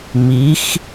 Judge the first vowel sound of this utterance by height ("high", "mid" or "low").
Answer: high